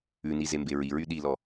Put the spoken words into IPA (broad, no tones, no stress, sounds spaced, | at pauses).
ʉ n i z e m b e ɹ i ɹ y ɗ i l ɔ